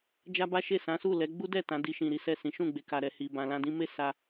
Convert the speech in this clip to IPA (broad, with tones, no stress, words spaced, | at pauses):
d͡ʒa˦ba˦ʃe˦˨sã˨˦ su˦˨lɛ˨˦ ɡ͡bu˦dɛ˦˨ tã˨˦di˧ʃĩ˨ ɾi˨˦sɛ˦˨sĩ˨˦ ʃũ˦˨ɡ͡be˨ka˨ɾɛ˨ hi˨bã˨lã˧ dĩ˧me˦ sa˧